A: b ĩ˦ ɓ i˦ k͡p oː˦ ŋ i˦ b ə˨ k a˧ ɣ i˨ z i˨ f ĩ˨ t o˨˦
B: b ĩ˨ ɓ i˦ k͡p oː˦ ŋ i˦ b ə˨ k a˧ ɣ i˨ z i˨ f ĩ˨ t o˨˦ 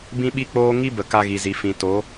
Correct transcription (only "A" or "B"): A